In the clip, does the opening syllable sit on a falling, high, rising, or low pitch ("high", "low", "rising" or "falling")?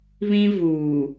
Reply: high